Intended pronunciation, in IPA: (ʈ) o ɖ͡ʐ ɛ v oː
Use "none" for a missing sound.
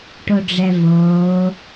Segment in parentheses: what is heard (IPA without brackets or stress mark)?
ʈ